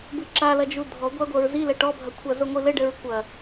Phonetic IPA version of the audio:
b ɨ ǁ a l ɐ d͡ʒ u dʱ ɔ ɡʷ a ɡʷ ɐ ɹ z i l ɛ ʈ ɔ bʱ ɐ kʷʰ a z o ŋʷ i l ɘ ɖ ɘ ɹ kʷ ɐ

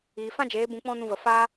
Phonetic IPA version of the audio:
iː˨ f ã˦ d͡ʒ eː˨˦ b ũ˧ k͡p ɔ̃˦ n ũ˧ v ə˨ f aː˧

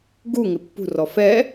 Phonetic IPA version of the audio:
ɡ u ŋ ɪ pː ṳ r ɔ f ɛ

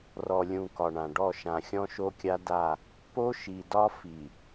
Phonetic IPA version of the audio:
r ɔ˨ lʲ ũ˨ k ɒ˨ ɳ ã˨ ɖ ɔ˦˨ ʃ ã˨ xʲ ɔ̃˦ ʃ o˦ kʲ a˦ d a˦˨ | p o˦ ʃ i˨ d ɒ˦ f i˨

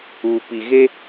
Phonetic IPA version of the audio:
uː˨ p i˨ ɣ e˦

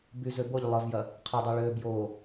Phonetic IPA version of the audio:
b y z ø b o ʎ lˠ ə v j ɐ | qʰ ə dˤ ɛ ɭ ø b j o

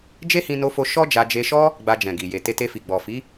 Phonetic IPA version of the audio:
d͡ʒ e˦ h ĩ˧ n o˧ f o˧ ʃ ɔ˦ d͡ʒ a˧ d͡ʒ e˧ ʃ ɔ˦ | ɡ͡b a˧ d͡ʒ ɛ̃˨ ɡ i˨ j e˨ t e˧ t e˧ f i˨ ɡ͡b ɔ˨ f i˨˦

